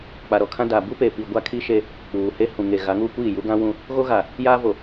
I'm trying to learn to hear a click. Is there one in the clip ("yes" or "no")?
no